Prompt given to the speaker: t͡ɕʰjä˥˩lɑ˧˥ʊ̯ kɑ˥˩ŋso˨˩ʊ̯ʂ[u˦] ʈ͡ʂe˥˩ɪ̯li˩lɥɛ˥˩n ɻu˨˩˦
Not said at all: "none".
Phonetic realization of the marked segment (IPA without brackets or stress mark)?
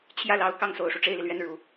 u˦